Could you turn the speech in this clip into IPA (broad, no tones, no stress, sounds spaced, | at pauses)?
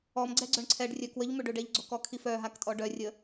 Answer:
ɔ m ɡ͡ǀ ɛ ɡ͡ǀ œ ɳ ǀʰ ɛ ɖ rʲ œ k w ə ʎ m ø ɖ ø ɖ ɛ ʎ ɡ͡ǀ o k ɔ kʰ i f œ ɦ a k tʼ ɔ ɖ œ rʲ ə